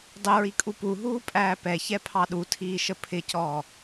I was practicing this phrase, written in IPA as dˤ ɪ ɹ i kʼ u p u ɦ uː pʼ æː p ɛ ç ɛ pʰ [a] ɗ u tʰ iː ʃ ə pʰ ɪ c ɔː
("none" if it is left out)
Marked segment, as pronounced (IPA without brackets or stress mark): ɑ